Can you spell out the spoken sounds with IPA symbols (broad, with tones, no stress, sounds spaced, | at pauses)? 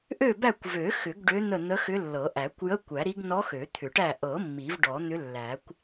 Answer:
ʔ ø˦˨ b æ˦˨ kʷ v ø˨˩˦ x ʏ˨˩˦ ɡ ɖ ø˧˥ n̪ ə˦˨ n̪ ə˧˥ x ʏ˧˥ lː ɤ˨˩˦ ʔ æ˨˩˦ kʷ j ə˧˥˧ kʷ æ˨˩˦ ɾ i˧˥ ɡ n ɔ˧˥ x ø˨˩˦ t̪ʰ ʏ˨˩˦ ʈ æ˦˨ ʔ ɤ˨˩˦ mː i˨˩˦ v ɖ ɔ˨˩˦ n̪ ʏ˧˥ lː æ˨˩˦ kʷ